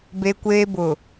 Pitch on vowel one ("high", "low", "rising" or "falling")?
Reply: high